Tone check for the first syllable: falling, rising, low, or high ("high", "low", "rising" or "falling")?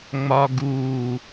low